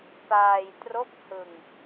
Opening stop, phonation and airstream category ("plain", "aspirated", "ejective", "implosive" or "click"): plain